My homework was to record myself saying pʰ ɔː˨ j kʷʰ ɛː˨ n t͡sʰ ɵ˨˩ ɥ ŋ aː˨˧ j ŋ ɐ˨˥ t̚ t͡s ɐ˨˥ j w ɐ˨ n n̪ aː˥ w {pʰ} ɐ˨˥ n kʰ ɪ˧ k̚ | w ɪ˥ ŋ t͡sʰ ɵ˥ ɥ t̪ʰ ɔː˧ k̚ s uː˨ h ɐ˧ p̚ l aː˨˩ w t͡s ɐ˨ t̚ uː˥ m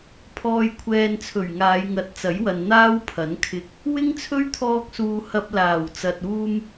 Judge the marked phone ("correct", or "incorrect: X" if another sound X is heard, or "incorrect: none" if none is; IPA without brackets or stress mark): correct